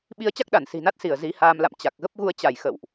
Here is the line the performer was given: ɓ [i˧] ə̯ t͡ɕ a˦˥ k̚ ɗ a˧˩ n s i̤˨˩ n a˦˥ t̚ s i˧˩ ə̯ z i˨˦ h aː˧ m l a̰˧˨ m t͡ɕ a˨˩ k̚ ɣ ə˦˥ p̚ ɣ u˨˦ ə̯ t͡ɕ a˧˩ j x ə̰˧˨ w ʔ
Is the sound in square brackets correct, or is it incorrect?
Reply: correct